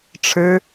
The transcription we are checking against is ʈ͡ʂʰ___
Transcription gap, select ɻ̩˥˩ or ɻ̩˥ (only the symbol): ɻ̩˥